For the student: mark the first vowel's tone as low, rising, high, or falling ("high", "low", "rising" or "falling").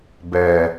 low